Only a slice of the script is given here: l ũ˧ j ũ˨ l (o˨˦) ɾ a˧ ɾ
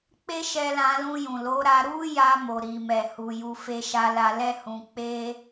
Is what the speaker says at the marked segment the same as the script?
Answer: yes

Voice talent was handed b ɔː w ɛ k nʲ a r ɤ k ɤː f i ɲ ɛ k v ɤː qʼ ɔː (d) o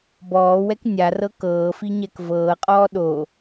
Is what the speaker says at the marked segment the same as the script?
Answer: no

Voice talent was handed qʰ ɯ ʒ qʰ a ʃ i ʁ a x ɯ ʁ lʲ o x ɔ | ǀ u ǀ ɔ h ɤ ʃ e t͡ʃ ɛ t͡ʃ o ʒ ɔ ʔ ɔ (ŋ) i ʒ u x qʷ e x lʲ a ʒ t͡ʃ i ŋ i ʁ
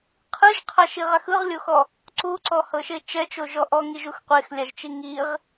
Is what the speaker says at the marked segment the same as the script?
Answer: yes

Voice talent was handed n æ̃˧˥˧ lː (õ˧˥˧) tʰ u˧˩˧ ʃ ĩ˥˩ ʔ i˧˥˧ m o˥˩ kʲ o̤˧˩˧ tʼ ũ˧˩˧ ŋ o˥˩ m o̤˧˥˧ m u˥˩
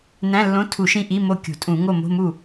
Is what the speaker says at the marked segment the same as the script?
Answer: yes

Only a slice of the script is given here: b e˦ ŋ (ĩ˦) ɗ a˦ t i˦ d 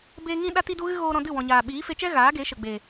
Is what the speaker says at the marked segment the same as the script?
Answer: yes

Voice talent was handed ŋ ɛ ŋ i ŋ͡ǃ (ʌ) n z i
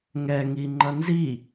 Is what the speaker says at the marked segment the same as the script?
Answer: yes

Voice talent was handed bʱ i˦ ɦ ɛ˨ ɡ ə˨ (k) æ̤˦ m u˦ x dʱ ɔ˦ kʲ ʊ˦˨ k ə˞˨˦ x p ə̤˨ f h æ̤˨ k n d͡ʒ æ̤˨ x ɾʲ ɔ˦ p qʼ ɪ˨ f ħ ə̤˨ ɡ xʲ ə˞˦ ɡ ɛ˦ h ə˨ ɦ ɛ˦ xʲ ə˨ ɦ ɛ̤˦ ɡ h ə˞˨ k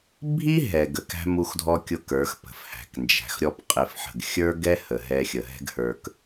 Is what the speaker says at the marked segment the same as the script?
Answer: yes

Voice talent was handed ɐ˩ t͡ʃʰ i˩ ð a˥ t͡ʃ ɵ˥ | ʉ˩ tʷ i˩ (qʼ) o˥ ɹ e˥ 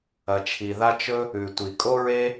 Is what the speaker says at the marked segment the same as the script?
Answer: no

